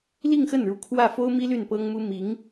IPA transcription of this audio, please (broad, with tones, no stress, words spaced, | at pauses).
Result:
li˥˧ŋxə˥˩nɻu˧˥ kʰwä˥˩fo˥ʊ̯mi˥ ly˥˩npɤ˥ŋmu˥ mi˧˥ŋ